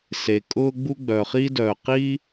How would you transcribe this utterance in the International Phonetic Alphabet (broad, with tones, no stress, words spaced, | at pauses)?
se˩kʼʊː˥ ɡ͡bu˥ɡ͡bœ˩χi˥ dœː˩qi˥